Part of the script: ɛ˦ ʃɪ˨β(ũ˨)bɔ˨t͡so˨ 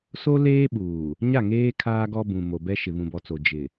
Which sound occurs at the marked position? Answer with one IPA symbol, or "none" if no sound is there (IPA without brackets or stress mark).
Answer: ũ˨